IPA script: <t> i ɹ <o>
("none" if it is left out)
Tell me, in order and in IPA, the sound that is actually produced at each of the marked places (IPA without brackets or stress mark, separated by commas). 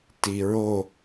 t, o